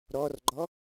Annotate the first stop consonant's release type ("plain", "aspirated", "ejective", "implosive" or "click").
click